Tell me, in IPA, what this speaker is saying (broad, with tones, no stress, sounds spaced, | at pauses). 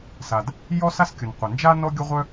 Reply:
s a˩ d | j ɔ˥ s a˥ s kʲ ʊ˩ n qʷ ɐ˩ n d͡ʒ a˥ n ɔ˥ ɡʲ ʊ˥ ʁʷ œ˥